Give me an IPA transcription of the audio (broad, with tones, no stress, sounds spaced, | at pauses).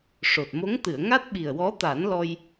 ʂ o˨˩ t̚ m o˧˥ ŋ t̪ ɨ˨˩˨ ə̯ ŋ a˦˥ t̚ ɓ i˨˩ ə̯ w ɔ˧˥ t̪ a˨˩˦ n l ɔ˧ j